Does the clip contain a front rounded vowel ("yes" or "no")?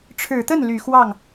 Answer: yes